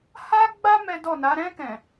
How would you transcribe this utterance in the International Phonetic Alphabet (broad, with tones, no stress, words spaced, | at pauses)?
ha˦ɡ͡ba˦ mɛ˦ dɔ˦˨na˨˦ ɾɛ̃˧kɛ̃˨